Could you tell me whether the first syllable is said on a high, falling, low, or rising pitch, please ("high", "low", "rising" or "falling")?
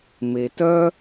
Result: low